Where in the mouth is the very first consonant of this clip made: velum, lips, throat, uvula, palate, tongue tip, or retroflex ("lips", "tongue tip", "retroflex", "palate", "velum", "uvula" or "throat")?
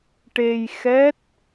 retroflex